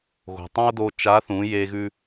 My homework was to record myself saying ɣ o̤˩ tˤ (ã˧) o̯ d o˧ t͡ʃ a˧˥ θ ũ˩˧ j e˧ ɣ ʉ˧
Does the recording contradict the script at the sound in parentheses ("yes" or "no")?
yes